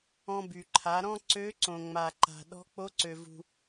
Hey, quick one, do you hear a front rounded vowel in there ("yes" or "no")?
yes